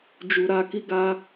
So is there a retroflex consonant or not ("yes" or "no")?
no